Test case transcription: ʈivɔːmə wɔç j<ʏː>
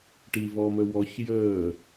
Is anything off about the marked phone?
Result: yes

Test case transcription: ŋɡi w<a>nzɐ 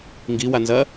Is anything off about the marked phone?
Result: no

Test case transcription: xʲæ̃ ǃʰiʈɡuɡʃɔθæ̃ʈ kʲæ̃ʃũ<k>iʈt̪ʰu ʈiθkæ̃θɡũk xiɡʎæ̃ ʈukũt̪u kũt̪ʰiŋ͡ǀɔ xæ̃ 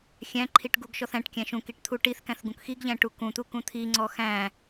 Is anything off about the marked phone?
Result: no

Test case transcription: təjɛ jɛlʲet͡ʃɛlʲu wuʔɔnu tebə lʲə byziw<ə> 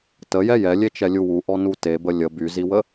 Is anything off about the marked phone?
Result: no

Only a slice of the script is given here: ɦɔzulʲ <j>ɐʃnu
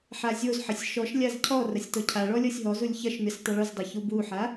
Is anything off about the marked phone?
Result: yes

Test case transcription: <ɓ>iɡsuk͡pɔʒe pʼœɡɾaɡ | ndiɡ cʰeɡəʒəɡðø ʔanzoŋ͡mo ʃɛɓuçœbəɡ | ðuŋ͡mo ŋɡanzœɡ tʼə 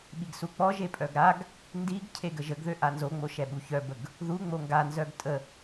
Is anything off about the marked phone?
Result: no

